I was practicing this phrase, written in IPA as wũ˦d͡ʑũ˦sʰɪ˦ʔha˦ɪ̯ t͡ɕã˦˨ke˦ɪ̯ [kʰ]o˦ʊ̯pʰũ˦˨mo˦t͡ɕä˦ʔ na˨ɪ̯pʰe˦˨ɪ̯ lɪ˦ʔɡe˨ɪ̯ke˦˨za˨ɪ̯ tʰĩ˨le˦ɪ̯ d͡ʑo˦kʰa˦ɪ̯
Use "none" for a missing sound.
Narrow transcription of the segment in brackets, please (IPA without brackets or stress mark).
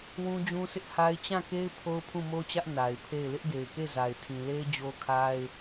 pʰ